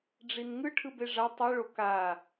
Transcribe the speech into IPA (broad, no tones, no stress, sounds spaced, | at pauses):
ɖ͡ʐ i n ŋ ɯ ʈʰ ɯ b e ʐ a tˤ ɯ ɭ o k a